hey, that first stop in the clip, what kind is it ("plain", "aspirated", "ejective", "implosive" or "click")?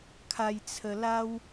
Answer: aspirated